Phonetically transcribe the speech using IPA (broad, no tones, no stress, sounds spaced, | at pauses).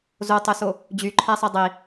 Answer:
z o tˤ ø s o | d͡ʑ y ǃʰ æ sˤ e dˤ i